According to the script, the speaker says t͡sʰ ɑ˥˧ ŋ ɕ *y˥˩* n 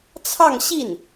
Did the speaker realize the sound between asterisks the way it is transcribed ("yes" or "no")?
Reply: no